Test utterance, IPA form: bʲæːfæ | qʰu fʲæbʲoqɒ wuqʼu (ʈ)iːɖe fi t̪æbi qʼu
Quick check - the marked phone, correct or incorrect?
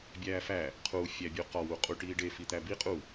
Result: correct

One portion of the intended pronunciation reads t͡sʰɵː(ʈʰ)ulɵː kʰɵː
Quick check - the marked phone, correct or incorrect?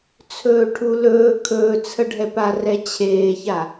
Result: correct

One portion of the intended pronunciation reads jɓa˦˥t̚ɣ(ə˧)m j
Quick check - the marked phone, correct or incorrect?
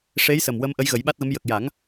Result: incorrect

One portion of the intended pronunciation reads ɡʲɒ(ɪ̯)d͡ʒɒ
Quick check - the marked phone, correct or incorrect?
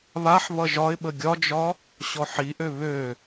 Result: incorrect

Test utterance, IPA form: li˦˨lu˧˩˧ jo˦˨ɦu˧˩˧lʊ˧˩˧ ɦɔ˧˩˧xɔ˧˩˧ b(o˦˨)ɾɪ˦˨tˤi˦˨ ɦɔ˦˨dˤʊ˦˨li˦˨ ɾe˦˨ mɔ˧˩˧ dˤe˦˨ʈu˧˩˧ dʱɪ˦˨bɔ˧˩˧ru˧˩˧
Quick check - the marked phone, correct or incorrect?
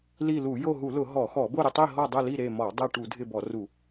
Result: correct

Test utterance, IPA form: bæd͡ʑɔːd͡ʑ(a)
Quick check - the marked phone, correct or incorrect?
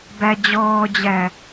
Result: incorrect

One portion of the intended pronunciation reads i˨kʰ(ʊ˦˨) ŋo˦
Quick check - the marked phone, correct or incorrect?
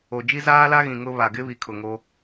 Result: incorrect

